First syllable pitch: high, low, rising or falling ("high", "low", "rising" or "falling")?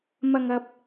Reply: low